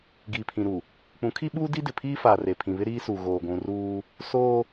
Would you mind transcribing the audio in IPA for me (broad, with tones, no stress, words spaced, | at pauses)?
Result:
ɡiː˨pʰĩ˨ ɾu˨ | k͡pũ˨˦kʰi˦ɓuː˦ di˦dɪ˨pʰiː˦ faː˨re˨pʰĩ˨βɪ˦ ɾiː˦su˨ ɣoː˨ɡʷũ˨ ruː˦ | soː˦